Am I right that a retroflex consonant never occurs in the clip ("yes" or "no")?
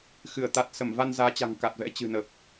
yes